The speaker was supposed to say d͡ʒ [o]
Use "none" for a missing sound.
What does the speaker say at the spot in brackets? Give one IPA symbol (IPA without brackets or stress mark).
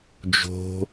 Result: o̤